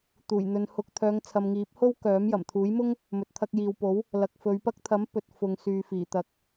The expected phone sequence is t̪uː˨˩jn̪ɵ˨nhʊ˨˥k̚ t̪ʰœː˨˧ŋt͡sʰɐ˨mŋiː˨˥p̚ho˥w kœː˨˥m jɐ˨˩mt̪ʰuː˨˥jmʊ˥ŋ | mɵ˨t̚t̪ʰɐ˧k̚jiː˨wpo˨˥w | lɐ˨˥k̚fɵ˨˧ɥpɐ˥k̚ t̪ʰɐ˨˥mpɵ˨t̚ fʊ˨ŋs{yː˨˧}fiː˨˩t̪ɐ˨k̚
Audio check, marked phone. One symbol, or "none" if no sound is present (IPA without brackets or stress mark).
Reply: yː˨